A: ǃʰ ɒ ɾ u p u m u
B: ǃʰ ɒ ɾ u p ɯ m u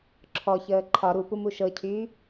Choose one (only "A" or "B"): A